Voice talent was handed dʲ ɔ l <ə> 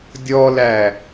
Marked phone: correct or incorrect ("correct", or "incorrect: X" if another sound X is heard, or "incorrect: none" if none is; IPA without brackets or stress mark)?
incorrect: æ